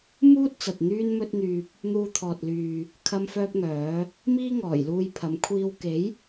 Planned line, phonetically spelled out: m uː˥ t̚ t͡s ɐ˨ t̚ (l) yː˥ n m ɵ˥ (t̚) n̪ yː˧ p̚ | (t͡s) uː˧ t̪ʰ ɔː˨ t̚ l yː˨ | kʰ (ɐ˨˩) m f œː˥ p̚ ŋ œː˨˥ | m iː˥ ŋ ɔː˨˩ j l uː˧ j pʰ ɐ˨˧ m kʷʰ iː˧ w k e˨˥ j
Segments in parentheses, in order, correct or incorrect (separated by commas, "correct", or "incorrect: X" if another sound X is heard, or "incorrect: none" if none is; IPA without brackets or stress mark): incorrect: n̪, correct, incorrect: n̪, incorrect: ɐ˥